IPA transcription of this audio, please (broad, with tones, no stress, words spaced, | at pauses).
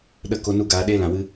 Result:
ɗə˦˨ ko˧nu˧ ɡaː˧ɗeː˦lã˨wɨ˧